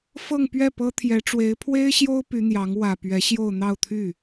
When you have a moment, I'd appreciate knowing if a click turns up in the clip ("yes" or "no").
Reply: no